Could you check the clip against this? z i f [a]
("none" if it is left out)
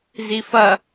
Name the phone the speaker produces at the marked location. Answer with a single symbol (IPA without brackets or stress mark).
ɐ